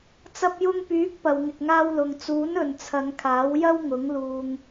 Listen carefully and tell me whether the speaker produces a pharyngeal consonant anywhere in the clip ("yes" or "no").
no